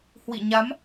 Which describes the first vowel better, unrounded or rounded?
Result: unrounded